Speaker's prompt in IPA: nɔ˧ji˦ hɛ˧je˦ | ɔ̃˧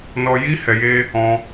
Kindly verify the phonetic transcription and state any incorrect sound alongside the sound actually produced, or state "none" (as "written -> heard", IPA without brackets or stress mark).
none